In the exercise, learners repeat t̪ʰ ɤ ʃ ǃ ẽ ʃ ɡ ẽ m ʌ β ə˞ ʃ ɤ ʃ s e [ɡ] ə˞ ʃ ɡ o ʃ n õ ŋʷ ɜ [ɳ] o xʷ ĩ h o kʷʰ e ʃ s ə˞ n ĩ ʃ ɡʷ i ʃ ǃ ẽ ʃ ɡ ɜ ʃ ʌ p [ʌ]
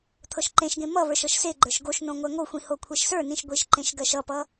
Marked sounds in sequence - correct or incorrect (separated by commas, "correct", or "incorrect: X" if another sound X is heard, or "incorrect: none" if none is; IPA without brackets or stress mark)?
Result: incorrect: ɡ͡ǃ, incorrect: ŋ, correct